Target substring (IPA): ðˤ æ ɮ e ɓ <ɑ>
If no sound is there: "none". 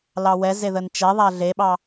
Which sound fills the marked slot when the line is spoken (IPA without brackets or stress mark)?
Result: ɑ